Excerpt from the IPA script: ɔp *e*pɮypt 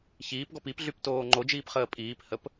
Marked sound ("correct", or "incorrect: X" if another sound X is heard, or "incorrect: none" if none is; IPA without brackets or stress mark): incorrect: i